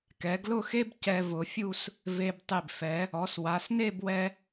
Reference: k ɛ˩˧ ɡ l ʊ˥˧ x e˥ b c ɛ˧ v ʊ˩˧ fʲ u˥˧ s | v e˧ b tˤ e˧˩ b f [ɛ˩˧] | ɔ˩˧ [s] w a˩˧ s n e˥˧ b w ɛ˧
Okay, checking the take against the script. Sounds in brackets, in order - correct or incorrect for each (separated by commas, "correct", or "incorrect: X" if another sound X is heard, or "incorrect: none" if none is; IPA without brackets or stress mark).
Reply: correct, correct